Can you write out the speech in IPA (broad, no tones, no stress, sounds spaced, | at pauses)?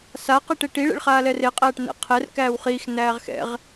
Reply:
s a q i ʈ e ʈ i ɭ ḛ ɭ χ aː l ɛ r e qʼ æː ʈ n ɛ̰ qʰ ɛ r k æː w χ iː x n æː ʁ x ɛ̰ ʁ